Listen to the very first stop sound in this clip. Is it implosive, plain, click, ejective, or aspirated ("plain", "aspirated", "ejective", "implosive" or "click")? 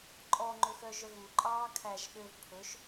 click